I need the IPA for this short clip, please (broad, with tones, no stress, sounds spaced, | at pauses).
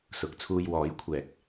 s ʊ˨˥ k̚ t͡sʰ uː˧ j w ɔː˨˥ j kʷʰ ɛː˨ k̚